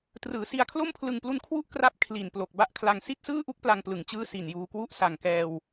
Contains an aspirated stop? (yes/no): yes